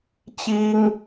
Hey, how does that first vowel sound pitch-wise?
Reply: high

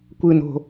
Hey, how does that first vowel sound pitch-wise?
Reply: low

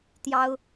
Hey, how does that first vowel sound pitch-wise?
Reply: high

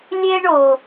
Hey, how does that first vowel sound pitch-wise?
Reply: high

